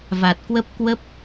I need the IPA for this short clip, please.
v a˨˩ t̚ k w ə˦˥ p̚ k w ə˦˥ p̚

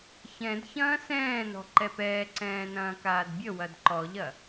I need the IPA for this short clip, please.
ç ɛ̃ d ç ɐ̃ː s ɛ̃ː n ɔ̤ ǃ ɛ p ɛː ǀ ɛ̃ː n ɐ̃ː k aː d bʲ ə w ɐ d ǃ ɔ ʎ ɐ

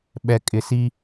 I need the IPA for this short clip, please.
ɓ ɛ˨ kʼ ɪ˨ s i˦

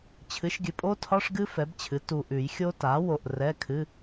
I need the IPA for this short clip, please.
t͡ɕʰ ɨ˩˥ ʃ ɡʲ ɨ˨ pʼ o˦˥ tʰ ɒ˧˥˧ ʂ ɡ ɨ˦˥ f ɛ˩˥ b t͡ɕʰ ɨ˩˥ t u˨ ʔ ʉ˨˩˦ j xʲ o˦˥ t a˩˥ w o˨ ʔ r ɛ˧˥˧ kʰ ɨ˧˥˧

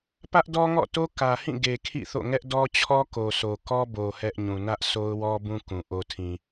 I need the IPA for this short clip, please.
p ä˦ ʔ d ɔ˦ ŋ ɔ̰˦˨ t o˦ k ä˨ h ĩ˦˨ ɡ e˨ kʰ ḭ˦˨ θ o̰˦˨ ŋ ɛ˦ ʔ d ɔ˦ t͡ɕʰ ɔ˦ k o˨ sʰ o˨ k ɔ˦ b o˨ h ɛ˦ ʔ ɲ ũ˨ n ä˦ ʔ s o˦ ʊ̯ w ɔ˦ b ũ˦ k ũ˨ ʔ o˨ tʰ ĩ˨

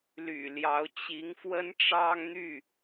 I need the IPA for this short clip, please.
l y̰˨˩ l j ɑ˧˥ ʊ̯ t͡ɕ i˧˥ ŋ f w ə˥ n ʈ͡ʂ ɑ˥ ŋ n̪ y˥˩

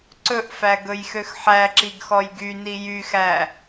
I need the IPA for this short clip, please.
ǀ ɵ ʔ f æ ɡ ɵ j x ø x ħ æ ǁ i ɡ x ɔ j ɡ y n i j y x æ

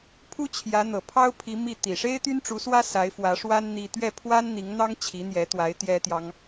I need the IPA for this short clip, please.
pʰ u˥ t͡ɕʰ j ä˧˥ n̪ ɤ˨˩ pʰ ɑ˥ ʊ̯ pʰ i˧˥ m i˥˩ t̪ i˨˩ ʂ e˥ ɪ̯ t̪ y˥ n ʈ͡ʂ u˧˥ s w ä˥ s a˧˥ ɪ̯ f w ä˧˥ ʂ w a˥ n n̪ i˥ t̪ ɥ ɛ˥˩ pʰ w a˥ n n̪ i˧˥ ŋ n̪ ɑ˥ ŋ t͡ɕʰ i˧˥ n̪ j ɛ˧˥ t̪ w a˧˥ ɪ̯ t̪ j ɛ˥ t̪ j ɑ˥ ŋ

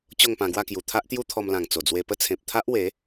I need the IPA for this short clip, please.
t͡ɕ o˥˧ ŋ p ã˧ ɡ w a˥˧ k j u˨˩ t̪ʰ a˦ ʔ t̪ j u˦ t̪ʰ ɔ˧ m l ã˨˩ ŋ t͡s o˨˩ d͡z w e˧ p ə˦ t͡sʰ ẽ˨ p̚ t̪ʰ a˦ ʔ w e˨˦

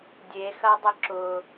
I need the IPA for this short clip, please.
dʲ e x ɐ dˤ ʊ ǁ ʊ

